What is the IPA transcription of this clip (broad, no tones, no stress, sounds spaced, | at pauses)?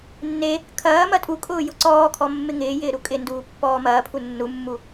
nː e | kʰ ɐː m ɐ tʼ u kʼ ʊː j ʊ ǀ ɔː kʰ ɔ mː ɪ ŋ ɪː j ɪː ɾ u kʼ ɪ n d uː pː ɔː m ɐː pʰ u nː u mː u